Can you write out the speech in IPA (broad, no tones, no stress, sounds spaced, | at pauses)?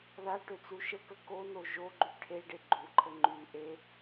ð a ʈ ø t͡s u ʃ ə k ə k o n o ʒ o ɡ͡ǃ y ʈʰ e ɖ e ɡ͡ǃ u ǃʰ ə ŋ͡ǃ y ʔ e